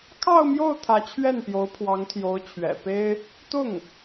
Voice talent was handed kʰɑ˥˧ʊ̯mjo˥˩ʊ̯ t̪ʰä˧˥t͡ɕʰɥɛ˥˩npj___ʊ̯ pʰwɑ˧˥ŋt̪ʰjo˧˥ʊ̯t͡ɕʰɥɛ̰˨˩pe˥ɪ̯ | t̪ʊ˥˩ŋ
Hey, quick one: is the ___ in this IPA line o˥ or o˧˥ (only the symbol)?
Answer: o˧˥